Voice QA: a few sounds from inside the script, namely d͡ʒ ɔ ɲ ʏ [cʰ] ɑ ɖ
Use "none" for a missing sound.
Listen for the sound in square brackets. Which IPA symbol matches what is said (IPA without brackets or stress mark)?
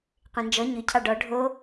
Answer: cʰ